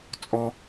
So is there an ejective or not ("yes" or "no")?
yes